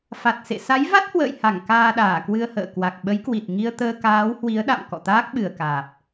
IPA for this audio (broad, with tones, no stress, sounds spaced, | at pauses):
f a˨˩ t̚ s ḛ˧˨ s a˨˦ j v a˦˥ t̚ h w ə̰ː˧˨ j h a˧˩ ŋ k aː˧ ɗ aː˧˩ k w ɨ˧ ə̯ h ə̰ː˧˨ k w a˨˩ k̚ ɓ ə˨˦ j k w i˨˩ t̚ ŋ i˧ ə̯ t̪ əː˧ k aː˨˦ w h w i˨˦ ə̯ ɗ a̰˧˨ m k ɔ̰˧˨ t̪ aː˦˥ k̚ ɓ ɨ˨˩ ə̯ k aː˨˩ p̚